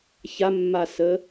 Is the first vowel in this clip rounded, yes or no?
no